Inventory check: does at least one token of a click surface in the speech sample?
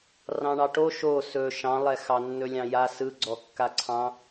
yes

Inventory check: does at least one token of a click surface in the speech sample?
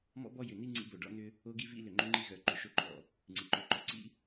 yes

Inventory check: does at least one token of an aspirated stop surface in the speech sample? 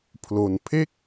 yes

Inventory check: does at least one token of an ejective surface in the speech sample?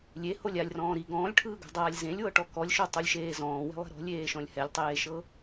no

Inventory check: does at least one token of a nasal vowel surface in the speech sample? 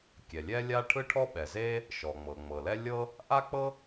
no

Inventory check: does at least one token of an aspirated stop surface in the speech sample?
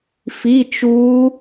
no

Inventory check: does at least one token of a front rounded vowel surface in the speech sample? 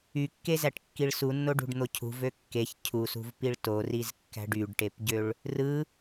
yes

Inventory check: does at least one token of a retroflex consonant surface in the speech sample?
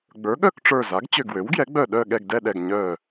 yes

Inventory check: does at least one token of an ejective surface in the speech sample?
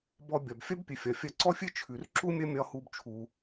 no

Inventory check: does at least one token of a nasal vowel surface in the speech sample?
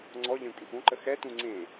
yes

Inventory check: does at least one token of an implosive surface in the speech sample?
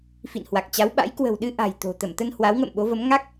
yes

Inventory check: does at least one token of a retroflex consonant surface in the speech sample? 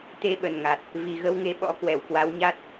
no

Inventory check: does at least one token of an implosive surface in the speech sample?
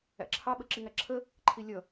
yes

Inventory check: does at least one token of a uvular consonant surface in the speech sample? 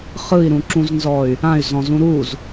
yes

